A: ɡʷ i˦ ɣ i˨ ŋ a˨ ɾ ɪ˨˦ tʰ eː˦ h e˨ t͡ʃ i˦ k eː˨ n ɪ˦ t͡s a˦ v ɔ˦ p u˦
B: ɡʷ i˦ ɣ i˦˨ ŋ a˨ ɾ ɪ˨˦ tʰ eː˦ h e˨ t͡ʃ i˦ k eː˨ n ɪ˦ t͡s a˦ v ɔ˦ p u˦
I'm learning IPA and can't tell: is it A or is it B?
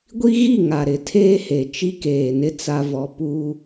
B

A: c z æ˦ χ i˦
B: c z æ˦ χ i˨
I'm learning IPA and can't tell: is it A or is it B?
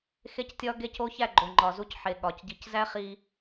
B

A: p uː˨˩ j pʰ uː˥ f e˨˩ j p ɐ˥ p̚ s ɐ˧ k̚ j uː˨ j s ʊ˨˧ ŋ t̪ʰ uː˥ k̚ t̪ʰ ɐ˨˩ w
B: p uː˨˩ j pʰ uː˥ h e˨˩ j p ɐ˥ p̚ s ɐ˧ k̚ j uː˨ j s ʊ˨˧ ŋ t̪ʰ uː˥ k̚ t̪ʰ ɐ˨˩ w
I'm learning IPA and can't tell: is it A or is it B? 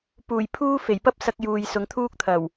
A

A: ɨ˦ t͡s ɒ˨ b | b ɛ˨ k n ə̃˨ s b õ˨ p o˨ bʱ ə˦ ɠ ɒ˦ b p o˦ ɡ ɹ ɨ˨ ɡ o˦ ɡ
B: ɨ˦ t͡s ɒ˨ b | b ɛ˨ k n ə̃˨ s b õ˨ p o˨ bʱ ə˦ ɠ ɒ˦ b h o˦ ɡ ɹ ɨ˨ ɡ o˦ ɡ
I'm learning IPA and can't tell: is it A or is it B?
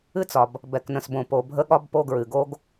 A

